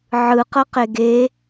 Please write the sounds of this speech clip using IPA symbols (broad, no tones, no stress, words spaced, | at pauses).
ʕɯqɤqe ɡe